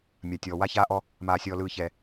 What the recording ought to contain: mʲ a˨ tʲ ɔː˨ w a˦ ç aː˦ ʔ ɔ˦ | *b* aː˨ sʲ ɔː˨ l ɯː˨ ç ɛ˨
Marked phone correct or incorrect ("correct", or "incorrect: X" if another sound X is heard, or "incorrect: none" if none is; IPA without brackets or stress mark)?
incorrect: m